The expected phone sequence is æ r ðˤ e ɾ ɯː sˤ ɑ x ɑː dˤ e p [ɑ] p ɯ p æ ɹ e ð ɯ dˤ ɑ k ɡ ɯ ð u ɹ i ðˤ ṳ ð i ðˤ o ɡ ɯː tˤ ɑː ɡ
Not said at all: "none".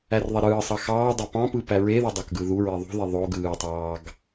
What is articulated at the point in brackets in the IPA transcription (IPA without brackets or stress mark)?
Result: ɑ̃